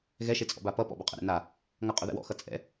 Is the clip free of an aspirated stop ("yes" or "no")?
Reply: yes